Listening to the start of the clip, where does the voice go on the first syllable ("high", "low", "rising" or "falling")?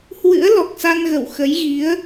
rising